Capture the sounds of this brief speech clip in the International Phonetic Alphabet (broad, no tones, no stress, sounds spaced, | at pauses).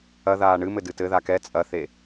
ɐ ð aː ɳ ɨ m ɘ d ɨ t ɘ ð a k ɛ t͡sʼ ɐ θ e